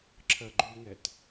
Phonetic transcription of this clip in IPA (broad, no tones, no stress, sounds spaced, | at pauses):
ǁʰ ɜ ɡ͡ǃ y ŋ ɛ t